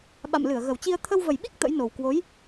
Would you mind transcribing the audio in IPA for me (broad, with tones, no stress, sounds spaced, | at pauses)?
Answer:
ɓ a̰˧˨ m l ɨ˧˩ ə̯ ɣ ə˨˩ w t͡ɕ i˧ ə̯ t̪ʰ ə˧ w v ə˨˩ j ɓ i˦˥ k̚ t̪ ə̰˧˥ j n o˨˩ w k w o˨˦ j